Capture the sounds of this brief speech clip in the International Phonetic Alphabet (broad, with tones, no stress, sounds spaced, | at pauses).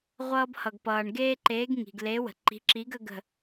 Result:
ʁʷ ʌː˦ b h ʌ˩ ɡ p ʌː˩ ɳ ɡ eː˦ ǃ eː˨˥ ɡ ŋ i̤˩ ɡ l e˨˥ w ə̤˩ ǃ i̤˨˥ ǁ i˨˥ ɡ ə˦ ɡ ə̤˧˩